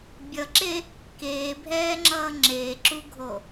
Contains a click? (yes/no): yes